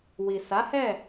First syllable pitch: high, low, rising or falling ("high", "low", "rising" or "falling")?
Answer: low